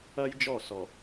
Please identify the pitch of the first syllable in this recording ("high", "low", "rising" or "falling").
high